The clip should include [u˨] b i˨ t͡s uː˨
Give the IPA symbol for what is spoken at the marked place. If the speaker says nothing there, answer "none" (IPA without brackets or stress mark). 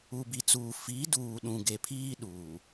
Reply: u˨